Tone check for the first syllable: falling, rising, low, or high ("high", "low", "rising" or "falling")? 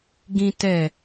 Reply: high